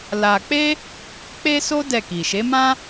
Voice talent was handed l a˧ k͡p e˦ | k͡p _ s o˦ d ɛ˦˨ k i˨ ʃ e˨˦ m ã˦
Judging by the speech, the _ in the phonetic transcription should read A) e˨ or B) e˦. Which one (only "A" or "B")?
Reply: B